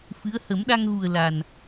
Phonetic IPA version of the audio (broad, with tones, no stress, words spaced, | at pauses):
fɨ˧˥ə̯ hə˨˩˦mɗa˧ŋɣu˨˩ə̯ la˨˩n